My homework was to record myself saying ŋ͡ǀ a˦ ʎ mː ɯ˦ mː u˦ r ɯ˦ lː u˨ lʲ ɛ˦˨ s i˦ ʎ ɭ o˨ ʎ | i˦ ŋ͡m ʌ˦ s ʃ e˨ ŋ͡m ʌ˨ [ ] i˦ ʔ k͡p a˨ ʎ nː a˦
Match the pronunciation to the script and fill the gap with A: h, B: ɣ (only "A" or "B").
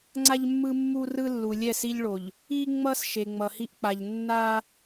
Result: A